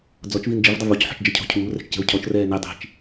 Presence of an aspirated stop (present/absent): present